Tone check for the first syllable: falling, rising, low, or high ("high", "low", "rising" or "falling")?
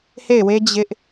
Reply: falling